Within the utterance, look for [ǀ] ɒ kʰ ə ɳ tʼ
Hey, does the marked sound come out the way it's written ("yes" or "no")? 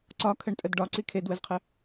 yes